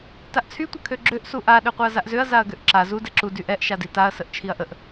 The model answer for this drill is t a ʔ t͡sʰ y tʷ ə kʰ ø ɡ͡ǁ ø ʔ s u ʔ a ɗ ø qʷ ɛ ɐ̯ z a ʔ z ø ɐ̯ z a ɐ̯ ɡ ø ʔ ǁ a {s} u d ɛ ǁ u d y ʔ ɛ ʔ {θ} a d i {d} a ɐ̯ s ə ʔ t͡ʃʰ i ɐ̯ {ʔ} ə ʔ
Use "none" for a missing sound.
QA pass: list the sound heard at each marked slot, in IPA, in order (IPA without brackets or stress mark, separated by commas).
z, ʃ, t, ʔ